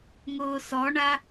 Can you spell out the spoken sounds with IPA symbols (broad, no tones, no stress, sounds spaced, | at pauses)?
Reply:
ŋ ʊː s ɔ ɳ a